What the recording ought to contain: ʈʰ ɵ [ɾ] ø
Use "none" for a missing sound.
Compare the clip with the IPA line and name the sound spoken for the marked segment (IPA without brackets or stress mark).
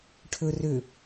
r